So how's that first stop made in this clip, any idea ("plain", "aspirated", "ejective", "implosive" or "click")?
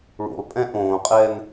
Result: ejective